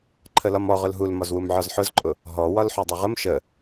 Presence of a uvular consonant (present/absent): present